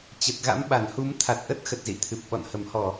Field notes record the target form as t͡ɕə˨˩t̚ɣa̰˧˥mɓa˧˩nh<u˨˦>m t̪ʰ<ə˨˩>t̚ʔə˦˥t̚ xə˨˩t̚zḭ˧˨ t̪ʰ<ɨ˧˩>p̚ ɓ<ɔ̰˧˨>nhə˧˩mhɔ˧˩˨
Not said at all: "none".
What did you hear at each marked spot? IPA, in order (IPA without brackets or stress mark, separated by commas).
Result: u˨˦, a˨˩, ɨ˨˩, ɔ̰˧˨